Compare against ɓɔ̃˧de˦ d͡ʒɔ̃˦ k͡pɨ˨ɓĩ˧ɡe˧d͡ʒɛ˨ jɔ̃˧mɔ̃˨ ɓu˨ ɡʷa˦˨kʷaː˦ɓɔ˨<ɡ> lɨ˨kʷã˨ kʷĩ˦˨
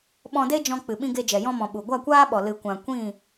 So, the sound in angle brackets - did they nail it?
no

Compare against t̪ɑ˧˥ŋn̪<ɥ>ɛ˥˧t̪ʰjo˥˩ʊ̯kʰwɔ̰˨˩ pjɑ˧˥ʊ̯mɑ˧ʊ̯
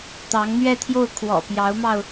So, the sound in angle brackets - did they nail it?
yes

